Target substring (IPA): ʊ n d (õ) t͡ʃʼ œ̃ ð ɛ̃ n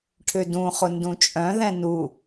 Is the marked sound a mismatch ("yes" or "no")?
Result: yes